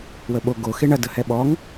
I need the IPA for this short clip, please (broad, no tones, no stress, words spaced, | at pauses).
wəɓo ɡo xeɳɐ dəhɛɓɔŋ